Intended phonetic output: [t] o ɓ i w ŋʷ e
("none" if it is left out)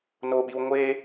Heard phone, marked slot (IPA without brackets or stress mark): n